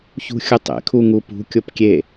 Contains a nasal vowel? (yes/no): no